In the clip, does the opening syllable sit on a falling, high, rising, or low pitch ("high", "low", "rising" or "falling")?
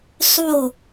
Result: falling